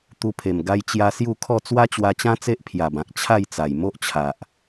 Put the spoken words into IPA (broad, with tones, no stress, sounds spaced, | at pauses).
t̪ u˧ pʰ e˨˩ m ɡ a˧ j t͡ɕ j a˧ s j u˥˧ kʰ ɔ˥˧ t͡s w a˦ t͡ɕ w a˧ t͡ɕ ã˦ t͡s e˦ ʔ pʰ j a˨˩ b ã˨ k̚ t͡ɕʰ a˥˧ j t͡s a˨˩ j m o˦ ʔ t͡ɕʰ a˨ ʔ